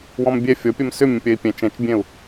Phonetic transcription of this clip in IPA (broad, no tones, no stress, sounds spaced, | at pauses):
w ɔ̃ m bʲ ɛ fʲ ɔ pʲ ɜ m s ʏ mʲ ə̃ pʲ ɜ i̯ pʲ ɛ̃ t͡ʃ ɛ̃ t͡ʃ bʲ ɛ̃ u̯